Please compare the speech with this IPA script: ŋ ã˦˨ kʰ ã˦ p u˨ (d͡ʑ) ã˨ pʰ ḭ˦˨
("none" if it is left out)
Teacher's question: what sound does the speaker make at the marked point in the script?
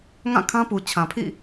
t͡ɕʰ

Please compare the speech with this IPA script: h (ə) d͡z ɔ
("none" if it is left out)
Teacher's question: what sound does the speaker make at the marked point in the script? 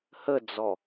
ə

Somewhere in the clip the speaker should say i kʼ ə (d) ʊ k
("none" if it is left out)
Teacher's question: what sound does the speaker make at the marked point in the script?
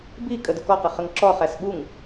d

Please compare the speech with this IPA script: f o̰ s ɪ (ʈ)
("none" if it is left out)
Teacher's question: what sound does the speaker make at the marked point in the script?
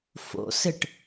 ʈ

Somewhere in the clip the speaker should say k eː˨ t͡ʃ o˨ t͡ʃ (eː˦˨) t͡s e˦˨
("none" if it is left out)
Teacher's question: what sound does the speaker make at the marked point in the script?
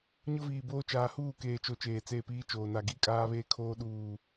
eː˨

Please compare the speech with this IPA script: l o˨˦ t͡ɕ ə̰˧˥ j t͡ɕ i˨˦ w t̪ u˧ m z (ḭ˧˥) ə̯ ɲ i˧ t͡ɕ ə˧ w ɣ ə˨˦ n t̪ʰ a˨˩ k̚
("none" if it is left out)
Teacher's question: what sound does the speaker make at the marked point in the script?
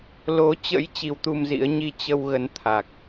ḭ˧˥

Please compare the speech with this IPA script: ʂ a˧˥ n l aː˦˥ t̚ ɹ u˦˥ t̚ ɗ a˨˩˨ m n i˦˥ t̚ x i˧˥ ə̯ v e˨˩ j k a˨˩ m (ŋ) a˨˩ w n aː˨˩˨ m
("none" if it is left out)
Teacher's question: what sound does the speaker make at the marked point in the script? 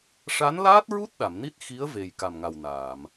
ŋ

